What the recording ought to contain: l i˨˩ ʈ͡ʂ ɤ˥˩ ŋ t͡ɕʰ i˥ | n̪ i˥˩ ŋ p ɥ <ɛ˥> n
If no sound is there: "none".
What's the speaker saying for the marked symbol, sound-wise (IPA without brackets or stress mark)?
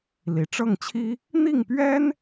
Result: ɛ˥